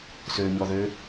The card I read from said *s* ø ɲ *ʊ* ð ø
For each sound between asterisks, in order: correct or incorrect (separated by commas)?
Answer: correct, incorrect